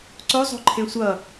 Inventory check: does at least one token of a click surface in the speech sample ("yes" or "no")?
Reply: yes